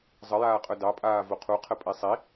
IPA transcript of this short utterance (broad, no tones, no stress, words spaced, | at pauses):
zˤəjaːqʼœ dɑpʼaː voqʰuqʰə pʼisˤi